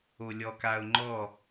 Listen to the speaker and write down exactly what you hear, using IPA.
olʲɔkaʊ̯ŋ͡ǃɔ

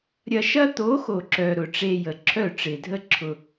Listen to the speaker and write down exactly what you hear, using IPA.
ɾʲɐ˧ʃɐ˦ t̪o˨˦xo˨ǁœ˨ ɾʊ˨ʈ͡ʂe˧jə˨ ǁʰœ˦˨ʈ͡ʂɪ˨dʱə˦ǁʰʊ˧

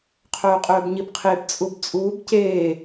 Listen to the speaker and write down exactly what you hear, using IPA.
qʰœːqʼœːbɲibqʰeb t͡sʼubt͡sʼuːb ceː

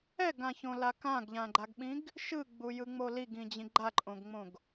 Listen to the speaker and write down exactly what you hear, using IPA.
ɛɡãçõla kãɡʎãɡ͡ǃaɡɓĩɡ | ʃɯɡ͡bujɯŋ͡mo liɡĩd͡ʑĩ ɡ͡ǃaǃʼõɡŋ͡mõɡ

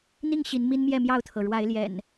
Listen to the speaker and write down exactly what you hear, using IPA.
n̪i˥˨ŋɕi˨˦n mi˦nmjɛ˥˨mjɑ˥˨ʊ̯t̪ʰɤ˩ ɻwa˨˦ɪ̯ljɛ̰˨˩n

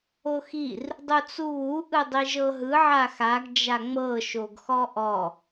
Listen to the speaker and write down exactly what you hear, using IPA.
oxir | dˤut͡suβu ʔɯdˤiʒɤɦɯ ʕaxaɡ d͡ʒaŋ͡mɤ ʃoɡxɔʔɔ

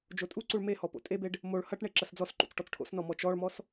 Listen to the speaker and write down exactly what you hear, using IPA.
d͡ʒotʼuǀuɭ mehɔ po̰tʼebeɖ | moɭ hɐʈ ɳeǁɐsd͡zɔsǃṵt͡s ʈɔt͡sʈʰo̰snɔ mɔt͡ʃɔɭmɔs

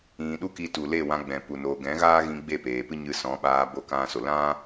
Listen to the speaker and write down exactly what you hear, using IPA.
ĩ˨ ɗu˦ki˧ tu˨le˦˨wã˧ ɡ͡bɛ̃˨pu˨ no˨ɡɛ̃˨˦ ɣaː˦ɣĩ˧ ɡ͡be˦˨peː˨ pɨ˦ɲɨ˧sɔ̃˨˦ɓaː˧ bo˧kã˧so˨ lã˦

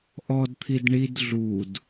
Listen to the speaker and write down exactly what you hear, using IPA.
ʔɔdt̪ʰid ɳid ɮud

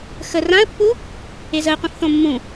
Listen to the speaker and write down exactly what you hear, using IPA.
xə rãə̯pːu | ezəɪ̯qʷĩf θõmːũ

